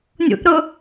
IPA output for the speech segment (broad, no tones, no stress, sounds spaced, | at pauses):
nʲ ṵ ʔ ɾ ʊ